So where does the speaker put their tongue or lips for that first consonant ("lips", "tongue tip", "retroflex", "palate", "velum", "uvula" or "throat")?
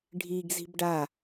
retroflex